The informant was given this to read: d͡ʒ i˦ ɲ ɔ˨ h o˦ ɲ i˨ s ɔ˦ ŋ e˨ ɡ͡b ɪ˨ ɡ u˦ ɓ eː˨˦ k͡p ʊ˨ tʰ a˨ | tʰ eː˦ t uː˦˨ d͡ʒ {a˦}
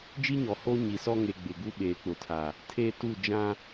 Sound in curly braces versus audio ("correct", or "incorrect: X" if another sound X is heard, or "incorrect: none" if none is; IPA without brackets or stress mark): incorrect: ã˦